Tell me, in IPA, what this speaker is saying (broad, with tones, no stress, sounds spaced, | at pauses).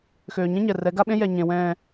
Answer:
x øː˨ ɲ ẽ˦ ɲ ɛ˨ r ɛ˨˦ ɡ a˦ ɓ ẽ˦ j ɛ˨ ɲ ẽ˨ w ɛ̃ː˨